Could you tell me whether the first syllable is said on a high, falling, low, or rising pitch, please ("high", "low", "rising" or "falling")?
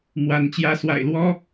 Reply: rising